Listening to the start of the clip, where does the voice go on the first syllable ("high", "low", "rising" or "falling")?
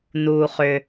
low